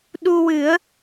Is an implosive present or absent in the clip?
present